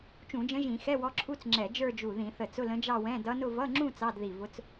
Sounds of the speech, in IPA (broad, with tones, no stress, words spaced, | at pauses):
t͡ʃũ˧˩˧d͡ʒə̃˧˥ʒĩ˧˩˧ xɛ˧˥˧wɔ˧˥ǁʰu˧˥˧t͡sŋ͡ǁɛ˧˩˧ d͡ʒə˞˥˧d͡ʒu˧˩ ðĩ˧˩˧θə˧˩ t͡sʊ˧˥˧lə̃˧˥d͡ʒɑ˥˧wɛ̃˧˥˧ dʌ˧˥nʊ˥˧ vʌ˧˥˧ŋ͡ǁũ˥˧ t͡sɑ˧˥˧dði˧˩vʊ˧˥t͡s